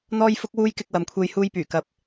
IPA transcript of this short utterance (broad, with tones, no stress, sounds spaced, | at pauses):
n̪ ɔː˥ j f ʊ˥ k̚ w uː˥ j k ɪ˧ k̚ w ɐ˨ m kʷʰ e˧ j h uː˧ j p yː˨˩ k ɐ˨ p̚